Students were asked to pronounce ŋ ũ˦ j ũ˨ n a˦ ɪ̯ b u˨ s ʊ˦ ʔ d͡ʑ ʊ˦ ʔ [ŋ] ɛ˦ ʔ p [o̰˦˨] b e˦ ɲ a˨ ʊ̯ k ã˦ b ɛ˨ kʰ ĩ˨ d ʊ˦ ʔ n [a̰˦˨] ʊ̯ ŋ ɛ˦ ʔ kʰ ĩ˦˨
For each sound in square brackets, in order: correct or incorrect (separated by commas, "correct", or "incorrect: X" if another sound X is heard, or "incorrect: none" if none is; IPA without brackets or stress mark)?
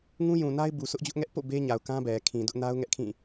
correct, correct, incorrect: a˦